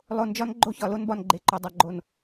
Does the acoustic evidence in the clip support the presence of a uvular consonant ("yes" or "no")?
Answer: no